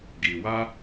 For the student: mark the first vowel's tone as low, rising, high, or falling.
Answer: low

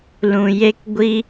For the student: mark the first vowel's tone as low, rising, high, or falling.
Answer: low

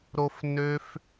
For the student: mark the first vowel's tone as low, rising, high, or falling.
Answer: high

